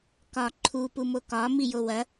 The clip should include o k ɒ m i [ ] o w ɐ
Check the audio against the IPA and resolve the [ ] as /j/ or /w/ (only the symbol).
j